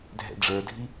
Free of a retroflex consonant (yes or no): no